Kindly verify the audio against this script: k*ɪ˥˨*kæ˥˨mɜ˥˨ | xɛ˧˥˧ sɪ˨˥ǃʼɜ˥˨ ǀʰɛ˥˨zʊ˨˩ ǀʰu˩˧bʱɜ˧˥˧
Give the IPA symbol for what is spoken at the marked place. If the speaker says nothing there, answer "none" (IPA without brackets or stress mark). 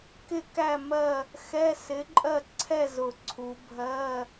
ɪ˥˨